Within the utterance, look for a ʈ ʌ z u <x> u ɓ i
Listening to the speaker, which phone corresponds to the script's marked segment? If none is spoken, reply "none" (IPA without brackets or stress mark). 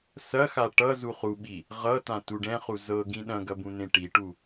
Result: χ